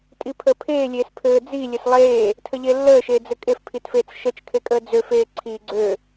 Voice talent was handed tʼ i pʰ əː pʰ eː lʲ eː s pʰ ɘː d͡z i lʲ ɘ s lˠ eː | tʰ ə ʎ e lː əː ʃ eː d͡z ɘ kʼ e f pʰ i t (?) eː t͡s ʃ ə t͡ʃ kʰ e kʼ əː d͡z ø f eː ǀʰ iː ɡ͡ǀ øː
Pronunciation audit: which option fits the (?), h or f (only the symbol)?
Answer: f